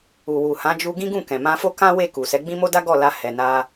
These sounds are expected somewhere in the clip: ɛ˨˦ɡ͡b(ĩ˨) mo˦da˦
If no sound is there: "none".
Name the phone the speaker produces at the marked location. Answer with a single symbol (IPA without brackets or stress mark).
ĩ˦